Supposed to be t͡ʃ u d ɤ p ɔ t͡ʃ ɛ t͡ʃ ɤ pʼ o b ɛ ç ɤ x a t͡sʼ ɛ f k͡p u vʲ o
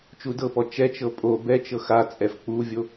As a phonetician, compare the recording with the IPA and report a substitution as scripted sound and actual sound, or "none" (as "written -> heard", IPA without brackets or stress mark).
ç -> t͡ʃ